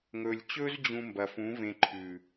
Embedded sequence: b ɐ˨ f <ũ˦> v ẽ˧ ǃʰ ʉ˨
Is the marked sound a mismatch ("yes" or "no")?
yes